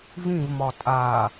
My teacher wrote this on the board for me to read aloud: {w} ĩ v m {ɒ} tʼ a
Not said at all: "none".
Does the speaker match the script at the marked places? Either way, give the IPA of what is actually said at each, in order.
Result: v, ɒ

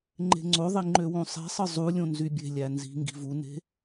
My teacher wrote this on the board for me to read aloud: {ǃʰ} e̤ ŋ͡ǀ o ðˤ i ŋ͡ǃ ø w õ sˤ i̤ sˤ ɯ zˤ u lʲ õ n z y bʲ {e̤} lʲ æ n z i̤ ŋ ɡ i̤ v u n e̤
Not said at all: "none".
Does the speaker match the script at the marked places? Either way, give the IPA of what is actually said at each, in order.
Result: ŋ͡ǃ, e̤

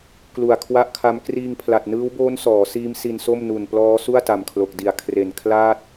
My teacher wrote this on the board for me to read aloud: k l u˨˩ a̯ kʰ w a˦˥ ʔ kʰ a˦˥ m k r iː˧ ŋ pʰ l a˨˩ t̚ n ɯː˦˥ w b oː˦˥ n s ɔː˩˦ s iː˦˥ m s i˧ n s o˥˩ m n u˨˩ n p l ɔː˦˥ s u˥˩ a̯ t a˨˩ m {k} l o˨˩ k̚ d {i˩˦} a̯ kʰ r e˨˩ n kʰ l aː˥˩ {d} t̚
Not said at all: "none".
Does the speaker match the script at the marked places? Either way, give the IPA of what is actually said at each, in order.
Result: kʰ, i˨˩, none

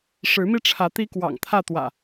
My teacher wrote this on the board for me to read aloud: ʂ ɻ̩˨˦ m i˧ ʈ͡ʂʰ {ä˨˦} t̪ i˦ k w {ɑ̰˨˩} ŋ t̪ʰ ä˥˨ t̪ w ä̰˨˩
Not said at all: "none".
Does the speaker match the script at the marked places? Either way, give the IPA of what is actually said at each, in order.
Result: ä˨˦, ɑ̰˨˩

